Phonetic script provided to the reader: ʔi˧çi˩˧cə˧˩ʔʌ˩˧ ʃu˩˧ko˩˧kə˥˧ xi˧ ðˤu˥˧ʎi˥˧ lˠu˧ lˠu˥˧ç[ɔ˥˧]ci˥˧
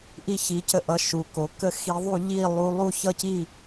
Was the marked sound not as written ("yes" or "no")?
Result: yes